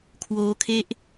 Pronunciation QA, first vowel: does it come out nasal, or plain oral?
oral